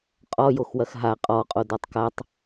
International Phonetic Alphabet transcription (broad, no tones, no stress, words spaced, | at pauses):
qʼɔjoxwɐx ɦa qʼɔqʼo dɔtˤkatˤ